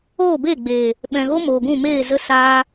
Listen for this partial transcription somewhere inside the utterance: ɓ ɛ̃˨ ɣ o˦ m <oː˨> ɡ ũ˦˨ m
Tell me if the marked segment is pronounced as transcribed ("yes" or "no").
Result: yes